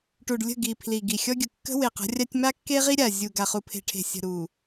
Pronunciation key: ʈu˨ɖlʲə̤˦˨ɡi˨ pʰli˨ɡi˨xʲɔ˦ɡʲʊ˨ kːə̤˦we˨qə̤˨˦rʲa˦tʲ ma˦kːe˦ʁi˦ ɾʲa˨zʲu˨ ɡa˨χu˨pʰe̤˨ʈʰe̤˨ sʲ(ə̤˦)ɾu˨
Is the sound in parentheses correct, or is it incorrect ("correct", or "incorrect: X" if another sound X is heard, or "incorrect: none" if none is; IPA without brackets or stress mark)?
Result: incorrect: ə̤˨